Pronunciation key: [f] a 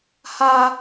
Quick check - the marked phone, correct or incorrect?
incorrect